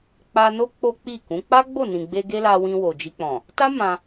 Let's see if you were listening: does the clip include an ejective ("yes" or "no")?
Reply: no